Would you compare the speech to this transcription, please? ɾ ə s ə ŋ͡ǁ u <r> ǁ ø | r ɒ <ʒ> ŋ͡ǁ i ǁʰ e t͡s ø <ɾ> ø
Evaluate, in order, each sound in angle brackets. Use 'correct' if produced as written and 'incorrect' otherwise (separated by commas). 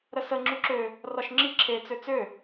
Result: incorrect, incorrect, incorrect